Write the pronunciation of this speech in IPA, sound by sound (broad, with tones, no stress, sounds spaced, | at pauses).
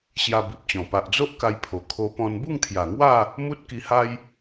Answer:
ɕ j a˧ b i˨ p̚ t͡ɕ ɔ̃˨˩ p a˨ ʔ d͡z o˦ ʔ k a˧ j pʰ o˨˩ kʰ o˧ p ɔ̃˧ n b u˥˧ ŋ t̪ʰ j a˨˩ ŋ w a˥˧ | m u˦ t̚ k i˧ h a˦ j